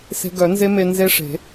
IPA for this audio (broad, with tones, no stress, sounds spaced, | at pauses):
s e̤˧ ɡ œ˨˩˦ n z e˦˥ m e˧ n z e˦˥ ʂ e̤˨˩˦